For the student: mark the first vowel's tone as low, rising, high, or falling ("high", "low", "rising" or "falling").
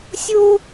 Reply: high